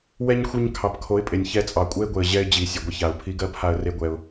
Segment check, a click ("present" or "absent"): absent